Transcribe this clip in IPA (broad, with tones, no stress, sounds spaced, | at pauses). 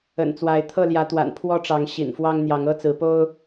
ə̰˨˩ n t͡s w a˨˦ ɪ̯ t̪ʰ ɤ˥˨ l j ä˨˦ t̪ w a̰˨˩ n pʰ w ɔ˦ ʈ͡ʂ ɑ˨˦ ŋ ɕ ḭ˨˩ n f w ɑ˦ ŋ n̪ j ɑ˨˦ ŋ ɤ˦ t͡s ɹ̩˨˦ p o˦ ʊ̯